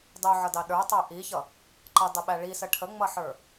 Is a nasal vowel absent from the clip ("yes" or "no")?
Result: yes